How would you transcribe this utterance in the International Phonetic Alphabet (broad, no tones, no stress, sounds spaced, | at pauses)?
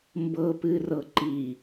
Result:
m b ɤ p ɨ r ɤ ǃ i